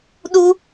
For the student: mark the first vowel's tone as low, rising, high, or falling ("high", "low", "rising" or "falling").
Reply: high